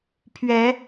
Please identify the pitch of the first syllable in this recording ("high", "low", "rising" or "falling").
rising